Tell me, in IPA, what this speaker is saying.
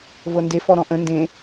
vɤnde fɔɾɔ̃ʔə̃ ndẽ

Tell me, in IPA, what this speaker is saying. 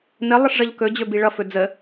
nə lˠəʂʐʌʎkɵ d͡ʑɵbiɭʌ fɵd͡zə

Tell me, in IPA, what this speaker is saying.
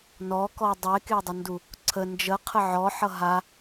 nɔkɔ dˤekedˤʌndu | ǀʰə nd͡ʒəqʰə ʕɔħʌ ɦa

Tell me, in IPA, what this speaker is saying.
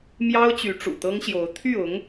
mjɑ˥ʊ̯ t͡ɕy˧˥ʈ͡ʂṵ˨˩t̪ɤ˥ŋɕjo˧˥ʊ̯ t̪ʰy˥˩ʊ˧˥ŋ

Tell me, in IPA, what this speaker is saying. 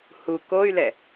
hu koy̯lɛ

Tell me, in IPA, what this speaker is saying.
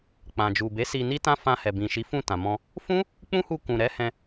k͡pã˨d͡ʒu˨be˨˦ si˧ni˦tã˦ fã˧hɛ˨bĩ˨ʃi˨˦ fũ˦˨tã˨ mɔ̃˧ | fũ˦ | k͡pũ˦hu˧kũ˨ɾɛ˨˦ hɛ̃˧

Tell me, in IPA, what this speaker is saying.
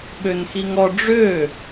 ɓønxiŋɔ ɖ͡ʐø

